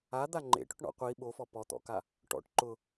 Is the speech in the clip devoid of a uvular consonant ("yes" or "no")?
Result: no